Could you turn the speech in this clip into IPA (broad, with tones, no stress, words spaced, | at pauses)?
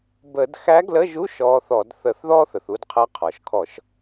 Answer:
bə˧˩˧d xæ˧˥ɡlə˧˥˧ʒu˧˥˧ʃ ɔː˧˥θɔ˧˩˧d θə˧˩˧θðɔː˥θə˩θ u˧dqʰə˧˥˧ qʰɔ˩ʃkʰɔ˧˩˧ʃ